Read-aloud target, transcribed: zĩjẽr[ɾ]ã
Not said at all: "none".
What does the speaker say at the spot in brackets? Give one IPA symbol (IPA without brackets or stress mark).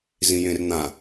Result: n̪